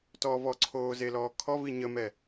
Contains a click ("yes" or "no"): yes